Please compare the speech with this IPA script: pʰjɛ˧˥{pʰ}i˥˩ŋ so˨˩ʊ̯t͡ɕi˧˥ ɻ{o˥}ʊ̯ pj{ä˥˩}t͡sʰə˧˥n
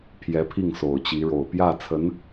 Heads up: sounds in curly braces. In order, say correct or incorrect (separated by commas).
correct, incorrect, correct